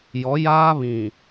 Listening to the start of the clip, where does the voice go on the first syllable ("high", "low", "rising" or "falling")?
rising